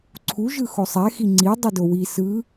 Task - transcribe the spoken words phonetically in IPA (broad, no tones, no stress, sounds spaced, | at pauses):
ǀʰ u ʒ ɯ x o sˤ ɛ x i ŋ͡ǀ i dˤ i d o w i s ɯ